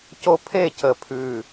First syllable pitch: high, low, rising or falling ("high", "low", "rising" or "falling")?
high